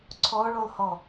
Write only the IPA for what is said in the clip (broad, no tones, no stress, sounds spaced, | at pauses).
ǀʰ ɔ ɭ o lˠ h ɔ